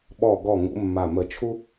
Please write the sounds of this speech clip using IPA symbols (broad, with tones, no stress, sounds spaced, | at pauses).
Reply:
ɓ ɔ˧˩ ɡ ɔ˧˩ ŋ ṵ˨˦ mː a˧˩ m ə˧˩ t͡ʃʰ u˥